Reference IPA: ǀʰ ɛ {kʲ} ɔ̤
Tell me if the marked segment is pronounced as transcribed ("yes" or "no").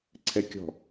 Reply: yes